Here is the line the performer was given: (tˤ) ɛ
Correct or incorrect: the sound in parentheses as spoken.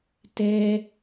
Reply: incorrect: t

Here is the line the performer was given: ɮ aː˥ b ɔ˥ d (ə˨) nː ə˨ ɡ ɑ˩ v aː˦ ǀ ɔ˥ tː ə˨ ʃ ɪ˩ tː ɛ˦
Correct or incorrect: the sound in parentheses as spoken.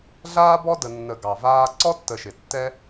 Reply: correct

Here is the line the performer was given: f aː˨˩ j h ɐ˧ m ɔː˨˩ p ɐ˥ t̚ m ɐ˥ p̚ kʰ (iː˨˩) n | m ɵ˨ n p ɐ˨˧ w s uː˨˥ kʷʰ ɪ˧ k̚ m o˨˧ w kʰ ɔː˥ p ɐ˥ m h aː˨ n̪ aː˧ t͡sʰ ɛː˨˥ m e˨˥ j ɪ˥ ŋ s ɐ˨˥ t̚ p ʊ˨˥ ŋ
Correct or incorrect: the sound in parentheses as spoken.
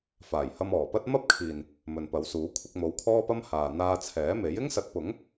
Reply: correct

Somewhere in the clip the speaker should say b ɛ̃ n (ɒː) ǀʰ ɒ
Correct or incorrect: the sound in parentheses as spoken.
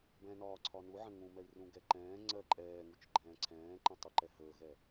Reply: correct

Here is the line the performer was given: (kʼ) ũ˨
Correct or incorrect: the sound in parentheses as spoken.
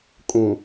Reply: correct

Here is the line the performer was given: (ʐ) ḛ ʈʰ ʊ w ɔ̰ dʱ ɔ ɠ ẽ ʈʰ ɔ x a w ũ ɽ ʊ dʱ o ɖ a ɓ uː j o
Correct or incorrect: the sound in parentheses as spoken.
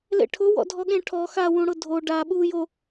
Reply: incorrect: l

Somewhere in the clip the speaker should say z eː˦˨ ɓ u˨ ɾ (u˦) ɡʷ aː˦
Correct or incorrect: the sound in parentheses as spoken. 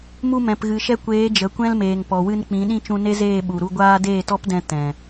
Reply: incorrect: u˧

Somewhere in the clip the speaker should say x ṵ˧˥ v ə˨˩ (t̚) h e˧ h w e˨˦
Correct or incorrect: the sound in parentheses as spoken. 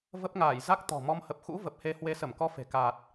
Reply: incorrect: p̚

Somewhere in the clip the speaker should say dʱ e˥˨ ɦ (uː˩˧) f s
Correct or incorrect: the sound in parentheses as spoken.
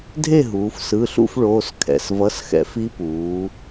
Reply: correct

